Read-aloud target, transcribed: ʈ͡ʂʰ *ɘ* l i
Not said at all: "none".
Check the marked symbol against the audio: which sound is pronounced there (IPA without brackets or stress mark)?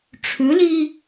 ʉ